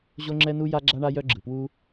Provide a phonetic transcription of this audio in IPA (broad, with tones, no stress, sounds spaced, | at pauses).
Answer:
ʑ o˥ ŋ͡ǁ ɛ˥ n u˥ j a˥ ɡ͡ǁ a˥ ɳ a˥ j œ˥ ɡ͡ǁ ɯ˩ p w u˥